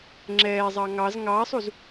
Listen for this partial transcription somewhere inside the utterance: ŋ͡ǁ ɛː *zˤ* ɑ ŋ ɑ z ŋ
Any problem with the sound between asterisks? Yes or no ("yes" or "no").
no